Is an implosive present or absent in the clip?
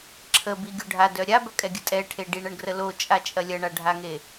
absent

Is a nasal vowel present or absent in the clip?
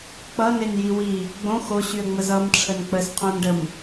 present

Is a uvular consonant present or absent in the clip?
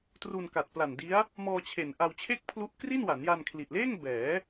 absent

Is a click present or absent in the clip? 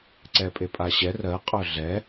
present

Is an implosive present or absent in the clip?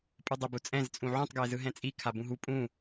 absent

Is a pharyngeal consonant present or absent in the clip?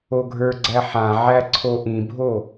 present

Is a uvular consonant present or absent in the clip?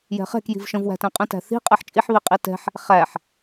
present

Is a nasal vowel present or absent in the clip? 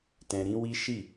present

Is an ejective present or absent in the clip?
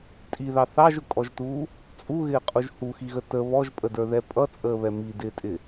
present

